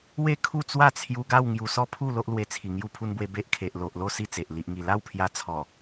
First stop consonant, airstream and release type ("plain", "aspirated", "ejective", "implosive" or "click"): aspirated